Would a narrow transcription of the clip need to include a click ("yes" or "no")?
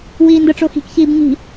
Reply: no